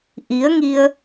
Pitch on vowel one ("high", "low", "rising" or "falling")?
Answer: rising